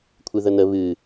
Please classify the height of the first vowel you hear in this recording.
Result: high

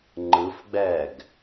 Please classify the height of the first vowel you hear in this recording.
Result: high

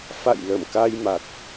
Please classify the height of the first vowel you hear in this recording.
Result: low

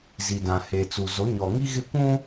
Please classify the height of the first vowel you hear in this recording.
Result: high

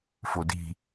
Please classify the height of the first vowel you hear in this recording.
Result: mid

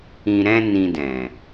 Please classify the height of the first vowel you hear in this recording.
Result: high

